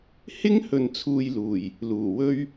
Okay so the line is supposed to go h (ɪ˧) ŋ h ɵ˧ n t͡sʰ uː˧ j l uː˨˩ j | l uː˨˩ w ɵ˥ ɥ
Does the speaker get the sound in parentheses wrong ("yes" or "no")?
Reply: yes